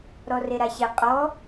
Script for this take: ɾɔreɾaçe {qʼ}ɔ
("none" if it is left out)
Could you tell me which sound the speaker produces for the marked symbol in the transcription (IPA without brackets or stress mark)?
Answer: qʼ